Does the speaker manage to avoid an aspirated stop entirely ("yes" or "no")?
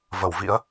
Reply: yes